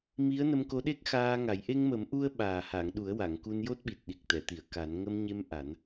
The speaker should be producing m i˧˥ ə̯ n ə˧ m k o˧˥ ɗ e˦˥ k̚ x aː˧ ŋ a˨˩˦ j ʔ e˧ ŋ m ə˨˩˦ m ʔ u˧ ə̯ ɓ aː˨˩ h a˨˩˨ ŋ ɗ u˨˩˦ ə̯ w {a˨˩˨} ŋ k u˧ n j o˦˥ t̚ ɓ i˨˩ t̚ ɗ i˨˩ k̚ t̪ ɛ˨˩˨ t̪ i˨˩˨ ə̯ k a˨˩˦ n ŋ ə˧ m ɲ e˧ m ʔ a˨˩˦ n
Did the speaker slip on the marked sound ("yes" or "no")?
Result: no